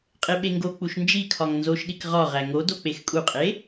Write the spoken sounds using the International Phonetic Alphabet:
qʼeɓeŋɡok͡puʃ nd͡ʒikʰɒŋ nzoʃɗik ʁɒʁæ ŋodo k͡pexkʼuqʼe

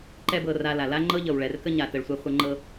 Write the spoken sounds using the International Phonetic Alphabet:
ǃɛ˦bɤ˧ra˧la˨ la˦ŋ͡ǃɤ˦ ʎɤ˨wɭɛ˨rkə˦ ɲa˨tə˨ɭsʷɛ˧ χʷə˧ ŋ͡ǃɤ˧

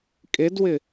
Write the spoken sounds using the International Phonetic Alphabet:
kʼedwɪ

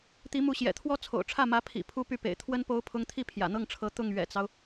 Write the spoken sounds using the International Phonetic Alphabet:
t̪i˧˥mu˧˥ɕjɛ̰˨˩t̪ʰwɔ˥ t͡sʰo̰˨˩ʊ̯ʈ͡ʂʰä˥˩mä˧˥ pʰḭ˨˩ pʰu˥py˥˩pḛ˨˩ɪ̯ t̪ʰwə˥n po˧˥ʊ̯pʰʊ˧˥ŋ t̪ʰi˥˩pʰjä̰˨˩n̪ɤ˥˩ŋʈ͡ʂʰɤ˧˥ t̪ʊ˥˩ŋ ɥɛ̰˨˩t͡sɑ˦ʊ̯

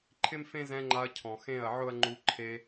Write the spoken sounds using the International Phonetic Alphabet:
ǃʰɪ˦mfẽ˦zɛ̃˧ ŋ͡ǃa˧ɐ̯cʰɔ̃˨ xẽ˦˨ɐ̯ʕʊ˦ɐ̯ŋ͡ǃu˧ ǃʰe˧

